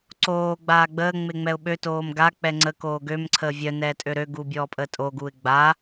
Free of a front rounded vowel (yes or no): no